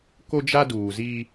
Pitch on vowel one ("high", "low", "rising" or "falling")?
high